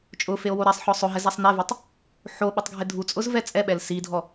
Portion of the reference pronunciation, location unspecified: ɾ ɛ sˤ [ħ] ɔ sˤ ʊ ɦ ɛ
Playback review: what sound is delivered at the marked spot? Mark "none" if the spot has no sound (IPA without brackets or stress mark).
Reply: ħ